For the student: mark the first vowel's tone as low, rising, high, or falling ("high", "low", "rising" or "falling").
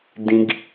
high